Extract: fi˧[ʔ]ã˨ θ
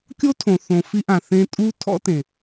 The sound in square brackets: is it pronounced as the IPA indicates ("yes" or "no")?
yes